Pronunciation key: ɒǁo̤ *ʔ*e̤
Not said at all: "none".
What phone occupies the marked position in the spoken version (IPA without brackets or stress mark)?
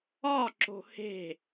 h